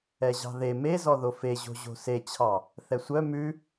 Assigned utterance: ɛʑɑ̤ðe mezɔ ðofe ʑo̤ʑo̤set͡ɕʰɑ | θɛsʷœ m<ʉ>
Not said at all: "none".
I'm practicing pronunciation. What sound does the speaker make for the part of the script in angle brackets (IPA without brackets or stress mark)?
ʉ